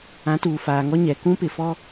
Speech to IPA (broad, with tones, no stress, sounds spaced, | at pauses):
ã˨˦ t uː˨ f aː˨ ŋ ɔ˦ ɲ ɛ˨ k ũ˦ p ɪ˨ f ɔ˦